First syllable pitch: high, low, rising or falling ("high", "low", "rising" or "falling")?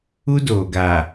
high